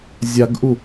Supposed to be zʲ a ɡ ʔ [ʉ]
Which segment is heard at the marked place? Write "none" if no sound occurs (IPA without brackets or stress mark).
u